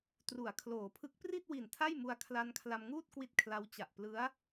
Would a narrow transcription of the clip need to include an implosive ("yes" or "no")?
no